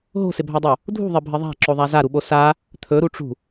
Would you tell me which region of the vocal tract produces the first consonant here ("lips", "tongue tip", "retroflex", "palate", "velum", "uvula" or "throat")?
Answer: throat